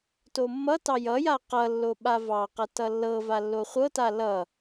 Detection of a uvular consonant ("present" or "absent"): present